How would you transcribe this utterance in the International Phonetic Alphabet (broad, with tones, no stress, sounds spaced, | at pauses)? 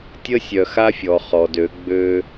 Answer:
tʲ ə˦ sʲ œ˨ x a˦ fʲ ɔ˨ χ ɔ˨ d ø˨˦ ɡ͡b ø˦